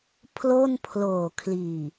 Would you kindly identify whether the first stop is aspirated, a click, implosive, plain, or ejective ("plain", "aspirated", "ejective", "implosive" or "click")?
aspirated